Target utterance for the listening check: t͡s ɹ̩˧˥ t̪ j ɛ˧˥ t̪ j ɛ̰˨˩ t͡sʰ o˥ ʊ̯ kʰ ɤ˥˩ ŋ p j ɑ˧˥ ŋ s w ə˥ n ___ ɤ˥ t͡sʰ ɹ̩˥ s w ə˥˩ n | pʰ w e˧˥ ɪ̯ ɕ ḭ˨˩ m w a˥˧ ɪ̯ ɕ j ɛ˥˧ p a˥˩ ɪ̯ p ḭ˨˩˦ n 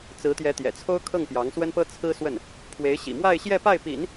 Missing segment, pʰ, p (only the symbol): p